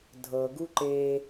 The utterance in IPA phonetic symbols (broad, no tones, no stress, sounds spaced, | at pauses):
dʱ ɤ ɡ u ǃ e